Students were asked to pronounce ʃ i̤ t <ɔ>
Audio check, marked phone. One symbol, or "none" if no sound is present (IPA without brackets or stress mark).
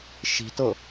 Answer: ɤ